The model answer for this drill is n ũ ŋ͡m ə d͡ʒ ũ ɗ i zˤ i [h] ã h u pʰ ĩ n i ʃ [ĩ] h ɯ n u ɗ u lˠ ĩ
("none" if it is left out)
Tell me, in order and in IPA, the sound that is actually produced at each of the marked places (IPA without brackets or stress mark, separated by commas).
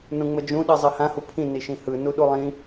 h, ĩ